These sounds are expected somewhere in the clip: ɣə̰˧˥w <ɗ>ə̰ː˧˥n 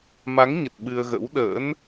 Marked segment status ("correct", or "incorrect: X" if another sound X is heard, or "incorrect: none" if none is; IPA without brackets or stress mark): correct